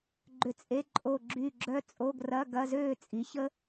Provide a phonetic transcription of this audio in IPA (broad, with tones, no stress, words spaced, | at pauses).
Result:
ɡ͡ǃʏ˦˨t͡sʼe˧˥˧ ǃʼo˦˨ɡ͡ǁy˦˨ɡ͡ǁœ˦˥ t͡sʼo˧˥˧ɡrɐ˧˥˧ɡɐ˧˥˧ zøː˦˨t͡sʼi˩˥ çə˦˥